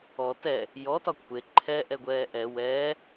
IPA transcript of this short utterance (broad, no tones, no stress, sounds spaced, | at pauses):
ɔ t ɛ | j ɔ t ɒ kʷʰ e ǃʰ ɛ ʔ ɛ ɡʷ ɛː ʔ ɛ w ɛː